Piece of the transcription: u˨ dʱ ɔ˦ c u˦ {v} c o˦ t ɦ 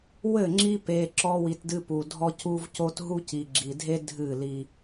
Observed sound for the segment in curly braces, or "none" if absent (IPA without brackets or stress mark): v